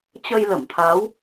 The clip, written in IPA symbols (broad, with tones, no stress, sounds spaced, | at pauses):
t͡ɕ ə˧ j l ə˧˩ m t̪ʰ a˨˦ w